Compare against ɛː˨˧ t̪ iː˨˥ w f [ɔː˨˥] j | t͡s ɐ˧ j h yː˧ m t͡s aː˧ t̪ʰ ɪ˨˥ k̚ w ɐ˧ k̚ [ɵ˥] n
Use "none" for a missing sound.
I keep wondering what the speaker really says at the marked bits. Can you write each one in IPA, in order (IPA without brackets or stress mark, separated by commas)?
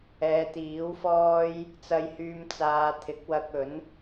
ɔː˥, ɵ˨˥